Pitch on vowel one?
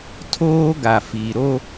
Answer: high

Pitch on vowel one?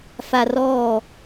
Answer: low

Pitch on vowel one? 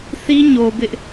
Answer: high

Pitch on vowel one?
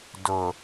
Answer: low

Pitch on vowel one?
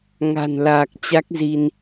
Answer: low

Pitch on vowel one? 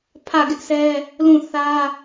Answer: falling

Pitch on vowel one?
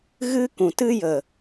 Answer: high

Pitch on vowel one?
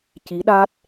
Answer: rising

